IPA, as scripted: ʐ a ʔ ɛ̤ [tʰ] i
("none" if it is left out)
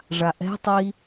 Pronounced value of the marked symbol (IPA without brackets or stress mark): tˤ